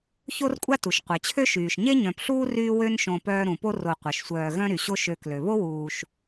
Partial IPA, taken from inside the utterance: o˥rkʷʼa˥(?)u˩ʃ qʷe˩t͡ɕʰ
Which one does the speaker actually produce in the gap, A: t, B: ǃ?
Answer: A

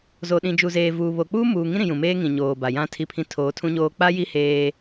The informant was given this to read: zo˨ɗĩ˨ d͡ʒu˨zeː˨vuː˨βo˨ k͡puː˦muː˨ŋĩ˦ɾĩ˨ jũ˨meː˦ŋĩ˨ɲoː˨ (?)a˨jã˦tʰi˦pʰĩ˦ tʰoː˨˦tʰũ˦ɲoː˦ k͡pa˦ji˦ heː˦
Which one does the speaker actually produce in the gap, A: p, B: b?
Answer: B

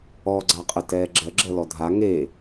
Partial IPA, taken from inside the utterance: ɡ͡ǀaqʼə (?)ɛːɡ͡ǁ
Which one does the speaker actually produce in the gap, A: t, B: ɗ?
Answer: A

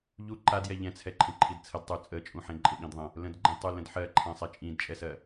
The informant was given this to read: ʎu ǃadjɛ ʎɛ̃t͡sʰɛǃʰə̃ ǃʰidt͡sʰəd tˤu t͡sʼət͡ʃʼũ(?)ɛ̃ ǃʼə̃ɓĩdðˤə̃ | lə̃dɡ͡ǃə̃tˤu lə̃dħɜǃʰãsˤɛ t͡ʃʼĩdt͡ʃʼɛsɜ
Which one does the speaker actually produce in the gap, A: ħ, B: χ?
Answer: A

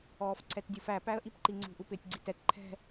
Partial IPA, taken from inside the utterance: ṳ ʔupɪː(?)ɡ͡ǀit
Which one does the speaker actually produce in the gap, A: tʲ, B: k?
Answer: A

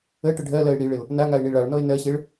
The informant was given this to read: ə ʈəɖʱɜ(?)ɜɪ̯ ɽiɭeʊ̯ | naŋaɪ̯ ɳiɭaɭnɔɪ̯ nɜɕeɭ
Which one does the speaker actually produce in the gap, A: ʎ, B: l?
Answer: B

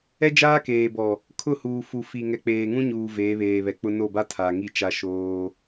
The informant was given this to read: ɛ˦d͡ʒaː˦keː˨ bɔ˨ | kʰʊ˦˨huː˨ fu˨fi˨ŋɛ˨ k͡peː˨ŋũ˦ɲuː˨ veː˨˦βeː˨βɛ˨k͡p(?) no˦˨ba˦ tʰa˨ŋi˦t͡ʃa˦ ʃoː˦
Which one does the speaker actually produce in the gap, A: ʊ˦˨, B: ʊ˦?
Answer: B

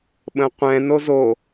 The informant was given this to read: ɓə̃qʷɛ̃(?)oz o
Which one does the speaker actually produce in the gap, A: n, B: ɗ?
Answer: A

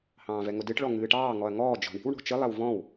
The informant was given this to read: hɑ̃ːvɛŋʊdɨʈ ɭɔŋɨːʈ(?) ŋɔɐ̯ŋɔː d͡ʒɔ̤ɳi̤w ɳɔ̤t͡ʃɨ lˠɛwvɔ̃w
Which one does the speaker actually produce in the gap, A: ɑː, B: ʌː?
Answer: A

